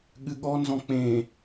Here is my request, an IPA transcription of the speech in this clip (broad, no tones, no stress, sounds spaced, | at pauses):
ɠ ɨ ɠ ɔ n z ɔ̃ k͡p ẽ